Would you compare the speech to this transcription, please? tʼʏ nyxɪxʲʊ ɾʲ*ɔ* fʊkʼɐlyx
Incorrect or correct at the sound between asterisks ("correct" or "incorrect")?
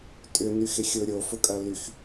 incorrect